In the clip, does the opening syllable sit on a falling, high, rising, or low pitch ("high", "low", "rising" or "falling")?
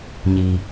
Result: low